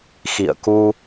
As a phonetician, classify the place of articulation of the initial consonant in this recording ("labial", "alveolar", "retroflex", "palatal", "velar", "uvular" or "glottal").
velar